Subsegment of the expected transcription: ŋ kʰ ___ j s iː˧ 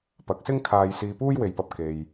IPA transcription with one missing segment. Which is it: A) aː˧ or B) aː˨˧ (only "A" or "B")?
A